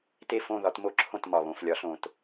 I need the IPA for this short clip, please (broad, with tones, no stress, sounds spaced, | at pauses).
t e˥˨ f õ˥˨ ð ɒ˨˦ t m o˥˨ ǁʰ õ˥˨ t m ɒ˩ β õ˩˧˩ f lʲ ɒ˨˩˦ ɬ õ˩ t